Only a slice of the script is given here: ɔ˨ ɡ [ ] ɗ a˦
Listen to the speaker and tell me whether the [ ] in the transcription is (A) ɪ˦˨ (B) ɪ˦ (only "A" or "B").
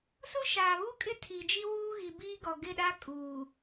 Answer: A